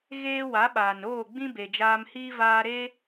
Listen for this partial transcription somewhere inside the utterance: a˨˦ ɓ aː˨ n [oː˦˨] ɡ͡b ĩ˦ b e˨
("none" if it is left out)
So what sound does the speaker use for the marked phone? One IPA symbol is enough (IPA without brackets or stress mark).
oː˦˨